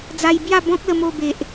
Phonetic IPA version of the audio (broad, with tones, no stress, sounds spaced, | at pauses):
d͡z a˧ j b j a˥˧ b ɔ̃˦ k̚ l ə˧ m o˧ b e˨ ʔ